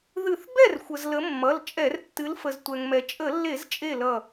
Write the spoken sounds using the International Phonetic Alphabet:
ð ɨ˧˩˧ θ b ɛ˥˩ r xʷ ə˩ z l ə˨˦ mː ʌ˩˧˩ l t͡ʃʼ ɛ˧˩˧ r tː ɨ˨˦ l f ə˩ z tʷ ɛ˩ ŋ m ɛ˩ t͡ʃʼ ə˧˩˧ lː e˧˩˧ z t͡ʃʼ e˧˩ l ʌ˧˩

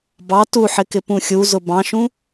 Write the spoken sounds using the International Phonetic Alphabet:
b ɑ t u ħ ɪ k ɪ p ũ xʲ u z ʊ b ɑ̃ ʃ ũ

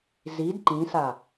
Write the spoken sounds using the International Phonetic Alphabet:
z i d ǃ ĩ s a

